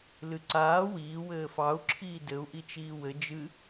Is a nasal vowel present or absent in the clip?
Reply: absent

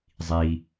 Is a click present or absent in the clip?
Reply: absent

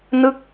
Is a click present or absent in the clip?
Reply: absent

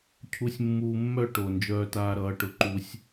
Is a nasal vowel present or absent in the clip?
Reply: absent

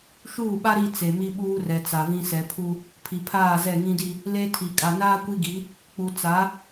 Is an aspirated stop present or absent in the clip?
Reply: present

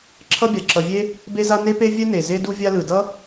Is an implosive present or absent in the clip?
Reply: absent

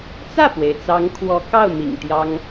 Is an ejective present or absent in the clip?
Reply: absent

